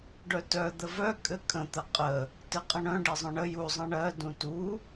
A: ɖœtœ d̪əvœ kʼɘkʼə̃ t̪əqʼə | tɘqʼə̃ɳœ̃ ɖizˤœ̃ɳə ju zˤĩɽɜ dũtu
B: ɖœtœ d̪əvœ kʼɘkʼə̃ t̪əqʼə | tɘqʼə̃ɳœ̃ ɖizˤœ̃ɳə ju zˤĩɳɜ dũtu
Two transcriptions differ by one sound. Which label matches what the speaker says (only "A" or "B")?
B